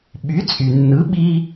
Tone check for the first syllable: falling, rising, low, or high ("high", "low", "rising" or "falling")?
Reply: rising